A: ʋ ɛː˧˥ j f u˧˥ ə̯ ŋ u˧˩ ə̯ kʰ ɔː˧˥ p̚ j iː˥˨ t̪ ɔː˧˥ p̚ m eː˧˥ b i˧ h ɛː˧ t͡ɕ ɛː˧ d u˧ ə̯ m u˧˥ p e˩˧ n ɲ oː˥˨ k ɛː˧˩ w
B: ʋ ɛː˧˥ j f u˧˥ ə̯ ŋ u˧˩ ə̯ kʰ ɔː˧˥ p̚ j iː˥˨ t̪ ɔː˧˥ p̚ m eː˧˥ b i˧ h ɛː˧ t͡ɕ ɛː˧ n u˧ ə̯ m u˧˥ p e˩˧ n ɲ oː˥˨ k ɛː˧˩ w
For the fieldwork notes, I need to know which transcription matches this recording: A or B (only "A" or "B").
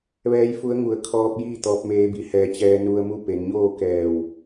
B